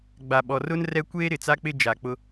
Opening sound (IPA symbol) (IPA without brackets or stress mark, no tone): ɡ͡b